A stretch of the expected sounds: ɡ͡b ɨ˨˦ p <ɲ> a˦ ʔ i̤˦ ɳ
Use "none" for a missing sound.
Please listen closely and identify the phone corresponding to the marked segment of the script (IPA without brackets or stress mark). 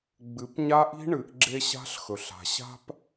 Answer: ɲ